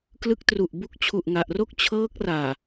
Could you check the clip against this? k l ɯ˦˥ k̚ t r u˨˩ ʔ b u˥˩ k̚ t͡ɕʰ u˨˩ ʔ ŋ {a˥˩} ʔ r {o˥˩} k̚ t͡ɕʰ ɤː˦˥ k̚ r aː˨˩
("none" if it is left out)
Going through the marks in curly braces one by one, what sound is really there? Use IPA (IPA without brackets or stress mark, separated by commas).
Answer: a˨˩, o˥˩